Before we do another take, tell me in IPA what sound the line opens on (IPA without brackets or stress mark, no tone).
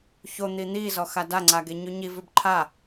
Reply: ç